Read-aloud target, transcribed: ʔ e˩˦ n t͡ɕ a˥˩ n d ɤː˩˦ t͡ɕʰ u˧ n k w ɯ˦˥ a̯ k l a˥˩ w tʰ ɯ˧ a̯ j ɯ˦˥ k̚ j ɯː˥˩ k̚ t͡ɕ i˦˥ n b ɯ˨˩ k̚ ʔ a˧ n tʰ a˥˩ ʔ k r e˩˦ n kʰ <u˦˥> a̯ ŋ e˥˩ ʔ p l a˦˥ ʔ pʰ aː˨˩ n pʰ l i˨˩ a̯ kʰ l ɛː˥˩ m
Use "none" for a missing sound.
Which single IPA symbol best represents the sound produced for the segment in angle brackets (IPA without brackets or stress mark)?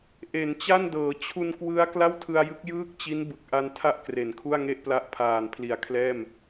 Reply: u˥˩